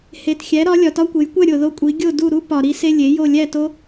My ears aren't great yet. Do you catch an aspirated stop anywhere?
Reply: no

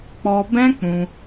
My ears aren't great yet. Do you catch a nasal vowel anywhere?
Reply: yes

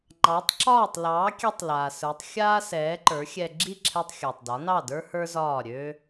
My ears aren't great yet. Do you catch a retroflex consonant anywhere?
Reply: no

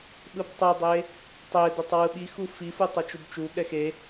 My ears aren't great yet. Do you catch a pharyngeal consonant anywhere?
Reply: no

